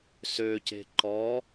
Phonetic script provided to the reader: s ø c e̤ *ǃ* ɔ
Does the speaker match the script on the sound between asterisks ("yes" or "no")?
yes